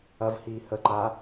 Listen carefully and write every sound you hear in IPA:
ɐ v h iː h ə ǃ a

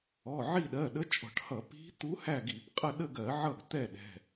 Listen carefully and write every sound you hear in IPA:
ɔ˩˧˩ ʕ i˦˨ ɗ ɜ˩˧˩ ɗ ə˧˥ t͡ʃʼ ɔ̤˧˩˧ ʈ h ʌ˧˩˧ p i̤˧˥ t̪ u˧˥ h æ˦˨ ɡ i˧˩˧ p qʼ ə˦˨ ɗ ə˦˨ ɡ ɜ˧˩˧ ʕ ʌ˦˨ ɡ t̪ ɛ˦˨ ɗ ɛ̤˩˧˩

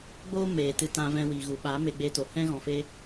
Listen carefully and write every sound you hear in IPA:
ɡ͡b oː˦ m eː˨ t ɨ˧ t ã˧ v ɛ̃˧ w iː˨ ɣ u˨ ɓ a˨˦ m e˧ ɡ͡b e˧ t o˨ h ɛ̃˦ ɣ ɔ̃˧ f e˦

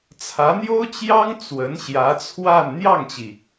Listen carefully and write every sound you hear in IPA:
t͡sʰ ä˧˥ n̪ j o˥ ʊ̯ t͡ɕ j ɑ˥ ŋ t͡s w ə˧˥ n ɕ j ä˧˥ t͡sʰ w a˥˧ n n̪ j ɑ˥˩ ŋ t͡ɕ i˩

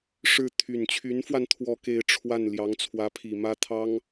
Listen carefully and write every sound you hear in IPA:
ʂ ɻ̩˥˩ t̪ʰ y˨˩ n t͡ɕʰ y˧˥ n f w a˧ n t̪ʰ w ɔ˥˧ k e˥˧ ɪ̯ ʈ͡ʂʰ w a˥˩ n l j ɑ˧˥ ŋ t͡sʰ w ä˧˥ pʰ i˨˩ m ä˥ t̪ʰ ɑ˥ ŋ

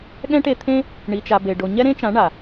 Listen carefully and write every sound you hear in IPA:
ɠ ɛ̃˦ ʈ e˧ t̪ʰ ẽ˧ | ɳ i˨ t͡ʃ a˨ b e˨ ɖ o˨ ɲ ɛ˦ ɾ ẽ˦ t͡ʃ ã˨˦ ɳ a˨

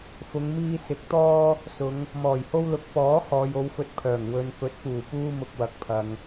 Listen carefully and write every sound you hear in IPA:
f ʊ˨˧ ŋ m iː˧ s ɪ˨˥ k̚ t̪ ɔː˥ | s ʊ˨˧ ŋ | m ɔː˨˩ j h o˥ w l ʊ˨˥ k̚ p ɔː˨˥ h ɔː˨ j o˨˧ w f ɵ˧ t̚ pʰ œː˨˩ ŋ w ɵ˨ n f ɵ˨˥ t̚ p uː˨˩ p uː˥ m ʊ˧ k̚ w ɐ˨˥ k̚ pʰ ɐ˨ ŋ

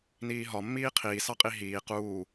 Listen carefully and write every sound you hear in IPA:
n iː ɦ ɒ mː iː qʰ iː s ɑ qʼ i ɦ iː q uː

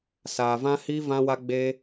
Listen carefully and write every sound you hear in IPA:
s aː˧ v ã˦ h i˦ v ã˦ w a˦ ɡ͡b e˦

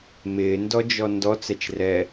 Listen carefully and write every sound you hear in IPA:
m ɪː n d ɔ d͡ʒ ɔ n d ɔ t͡s ɛ t͡ʃ r ɛ

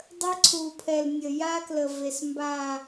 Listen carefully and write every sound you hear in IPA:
dˤ ə˦ ǀʰ u˨ pʰ ɛ˨ l nʲ ə˨ j a˦ k l ə˨ v e˨ s m b a˦˨

